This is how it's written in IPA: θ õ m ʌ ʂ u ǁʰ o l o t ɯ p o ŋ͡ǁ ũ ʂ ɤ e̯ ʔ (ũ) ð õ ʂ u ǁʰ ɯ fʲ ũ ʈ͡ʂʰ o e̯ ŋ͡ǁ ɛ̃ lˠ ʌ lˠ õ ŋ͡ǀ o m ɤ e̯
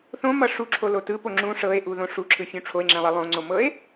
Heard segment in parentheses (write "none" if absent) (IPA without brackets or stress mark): u